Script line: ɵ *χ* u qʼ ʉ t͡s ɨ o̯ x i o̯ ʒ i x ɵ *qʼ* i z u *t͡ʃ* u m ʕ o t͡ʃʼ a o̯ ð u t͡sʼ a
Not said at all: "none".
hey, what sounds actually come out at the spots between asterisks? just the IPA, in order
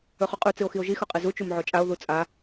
χ, qʼ, t͡ʃ

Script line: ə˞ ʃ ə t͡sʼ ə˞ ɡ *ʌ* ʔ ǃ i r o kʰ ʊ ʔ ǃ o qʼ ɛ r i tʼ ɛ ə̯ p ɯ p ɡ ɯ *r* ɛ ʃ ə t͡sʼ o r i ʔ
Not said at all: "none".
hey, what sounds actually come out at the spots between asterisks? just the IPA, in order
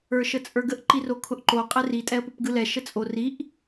ə, l

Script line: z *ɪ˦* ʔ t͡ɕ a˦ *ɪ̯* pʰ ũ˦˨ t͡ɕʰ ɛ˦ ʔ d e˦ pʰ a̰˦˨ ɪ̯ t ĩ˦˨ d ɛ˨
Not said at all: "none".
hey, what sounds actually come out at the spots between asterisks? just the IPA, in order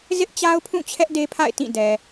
ɪ˦, ʊ̯

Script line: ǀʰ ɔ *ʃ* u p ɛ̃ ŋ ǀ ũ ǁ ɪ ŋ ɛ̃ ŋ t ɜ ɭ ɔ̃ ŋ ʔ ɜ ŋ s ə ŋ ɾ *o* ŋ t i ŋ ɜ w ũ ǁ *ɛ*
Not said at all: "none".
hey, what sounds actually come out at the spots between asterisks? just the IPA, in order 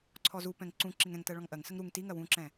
z, u, ɛ̃

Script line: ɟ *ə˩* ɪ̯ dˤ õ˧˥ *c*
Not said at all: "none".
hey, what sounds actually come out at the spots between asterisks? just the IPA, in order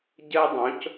ə˥, c

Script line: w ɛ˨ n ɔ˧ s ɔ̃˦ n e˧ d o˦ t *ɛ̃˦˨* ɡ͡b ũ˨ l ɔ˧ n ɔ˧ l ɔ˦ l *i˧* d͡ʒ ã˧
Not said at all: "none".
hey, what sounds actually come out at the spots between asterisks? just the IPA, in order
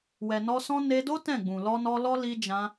ɛ̃˦˨, i˧

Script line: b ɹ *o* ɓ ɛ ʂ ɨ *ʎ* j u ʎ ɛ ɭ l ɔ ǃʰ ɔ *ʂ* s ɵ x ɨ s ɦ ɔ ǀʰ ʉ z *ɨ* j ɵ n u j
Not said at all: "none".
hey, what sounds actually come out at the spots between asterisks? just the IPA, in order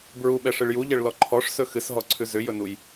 u, ɭ, ʂ, ʏ

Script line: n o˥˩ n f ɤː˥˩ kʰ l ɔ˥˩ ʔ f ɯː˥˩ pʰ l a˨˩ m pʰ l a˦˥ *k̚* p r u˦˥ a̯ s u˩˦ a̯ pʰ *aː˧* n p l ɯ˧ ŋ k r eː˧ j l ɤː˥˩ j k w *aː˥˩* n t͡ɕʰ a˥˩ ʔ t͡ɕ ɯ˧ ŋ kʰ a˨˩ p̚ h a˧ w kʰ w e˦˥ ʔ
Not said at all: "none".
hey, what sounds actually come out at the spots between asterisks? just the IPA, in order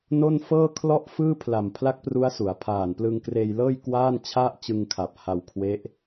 k̚, aː˨˩, aː˥˩

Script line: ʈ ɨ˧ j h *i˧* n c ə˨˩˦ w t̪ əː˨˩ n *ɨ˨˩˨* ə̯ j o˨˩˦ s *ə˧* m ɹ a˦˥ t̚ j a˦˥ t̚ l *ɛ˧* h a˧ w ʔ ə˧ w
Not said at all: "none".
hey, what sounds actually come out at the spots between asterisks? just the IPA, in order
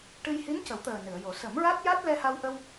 i˧˥, ɨ˨˩˨, ə˨˩˦, ɛ˧

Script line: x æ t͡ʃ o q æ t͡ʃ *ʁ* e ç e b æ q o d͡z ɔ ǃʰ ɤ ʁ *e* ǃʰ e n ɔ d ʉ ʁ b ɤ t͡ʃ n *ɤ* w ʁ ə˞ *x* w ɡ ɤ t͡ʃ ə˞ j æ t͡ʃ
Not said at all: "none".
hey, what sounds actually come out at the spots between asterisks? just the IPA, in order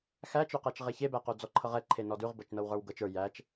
ʁ, ɛ, ɤ, none

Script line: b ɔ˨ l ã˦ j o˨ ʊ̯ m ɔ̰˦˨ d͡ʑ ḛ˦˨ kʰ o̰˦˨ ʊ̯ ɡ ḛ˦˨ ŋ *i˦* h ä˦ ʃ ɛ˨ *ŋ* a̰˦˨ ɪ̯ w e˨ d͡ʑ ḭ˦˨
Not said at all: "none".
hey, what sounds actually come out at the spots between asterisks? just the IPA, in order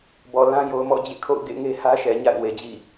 e˦, ɲ

